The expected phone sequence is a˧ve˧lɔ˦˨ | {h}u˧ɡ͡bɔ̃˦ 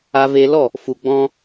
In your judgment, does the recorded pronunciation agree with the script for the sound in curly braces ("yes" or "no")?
no